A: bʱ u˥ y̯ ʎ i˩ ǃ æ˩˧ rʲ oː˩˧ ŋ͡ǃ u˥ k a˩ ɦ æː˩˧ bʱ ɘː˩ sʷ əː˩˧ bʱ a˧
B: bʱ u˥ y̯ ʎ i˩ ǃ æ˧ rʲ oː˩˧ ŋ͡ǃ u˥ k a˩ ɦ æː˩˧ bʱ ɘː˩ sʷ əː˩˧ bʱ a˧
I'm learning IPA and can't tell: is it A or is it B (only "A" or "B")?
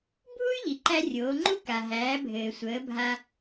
B